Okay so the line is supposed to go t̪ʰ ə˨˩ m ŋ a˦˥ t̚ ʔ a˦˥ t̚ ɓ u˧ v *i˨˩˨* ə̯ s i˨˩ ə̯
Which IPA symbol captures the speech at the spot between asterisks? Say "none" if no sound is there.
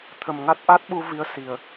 i˧˥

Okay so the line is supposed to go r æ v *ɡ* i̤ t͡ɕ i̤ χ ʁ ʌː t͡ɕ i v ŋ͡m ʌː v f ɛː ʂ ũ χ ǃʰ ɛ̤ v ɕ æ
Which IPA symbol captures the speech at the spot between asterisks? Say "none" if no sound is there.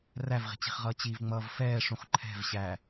ʁ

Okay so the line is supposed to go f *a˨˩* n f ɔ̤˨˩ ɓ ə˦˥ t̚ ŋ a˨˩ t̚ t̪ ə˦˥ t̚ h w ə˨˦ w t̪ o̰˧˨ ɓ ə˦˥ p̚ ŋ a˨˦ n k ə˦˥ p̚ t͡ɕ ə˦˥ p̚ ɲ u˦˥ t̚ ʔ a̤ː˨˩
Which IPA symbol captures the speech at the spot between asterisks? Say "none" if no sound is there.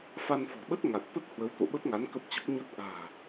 a˧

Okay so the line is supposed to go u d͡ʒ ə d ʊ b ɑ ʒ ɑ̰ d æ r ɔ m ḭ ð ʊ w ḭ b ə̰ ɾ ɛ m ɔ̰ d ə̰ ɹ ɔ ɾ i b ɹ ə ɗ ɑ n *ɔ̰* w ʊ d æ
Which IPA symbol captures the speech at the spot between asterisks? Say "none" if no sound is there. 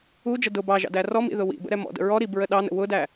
ə̰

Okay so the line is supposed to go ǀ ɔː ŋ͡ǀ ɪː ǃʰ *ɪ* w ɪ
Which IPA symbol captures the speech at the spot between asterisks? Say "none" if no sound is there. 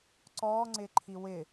i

